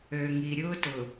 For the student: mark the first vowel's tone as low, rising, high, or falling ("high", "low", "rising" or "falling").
low